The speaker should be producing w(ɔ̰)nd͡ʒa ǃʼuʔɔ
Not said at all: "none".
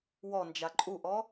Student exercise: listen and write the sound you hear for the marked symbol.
ɔ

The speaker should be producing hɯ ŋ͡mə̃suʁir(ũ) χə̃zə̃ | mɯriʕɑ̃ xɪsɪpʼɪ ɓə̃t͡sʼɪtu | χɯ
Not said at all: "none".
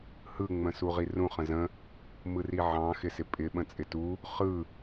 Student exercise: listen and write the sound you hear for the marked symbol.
ũ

